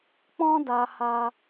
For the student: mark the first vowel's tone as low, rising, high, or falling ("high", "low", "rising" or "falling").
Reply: high